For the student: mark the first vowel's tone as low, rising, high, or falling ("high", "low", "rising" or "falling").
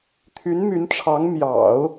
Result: rising